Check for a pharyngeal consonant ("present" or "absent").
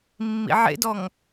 present